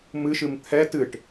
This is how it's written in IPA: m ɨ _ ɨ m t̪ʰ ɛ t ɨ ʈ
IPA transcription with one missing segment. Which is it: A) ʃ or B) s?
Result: A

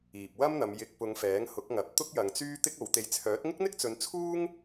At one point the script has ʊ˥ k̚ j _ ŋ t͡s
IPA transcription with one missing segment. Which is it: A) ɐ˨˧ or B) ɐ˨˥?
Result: A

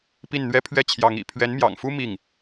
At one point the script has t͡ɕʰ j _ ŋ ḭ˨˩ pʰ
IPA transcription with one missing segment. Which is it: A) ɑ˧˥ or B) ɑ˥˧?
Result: A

